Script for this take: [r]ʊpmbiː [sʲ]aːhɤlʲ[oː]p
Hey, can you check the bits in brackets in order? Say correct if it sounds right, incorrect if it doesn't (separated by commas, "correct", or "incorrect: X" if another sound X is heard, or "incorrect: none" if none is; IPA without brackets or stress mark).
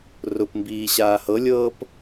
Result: correct, incorrect: ɕ, incorrect: ɤː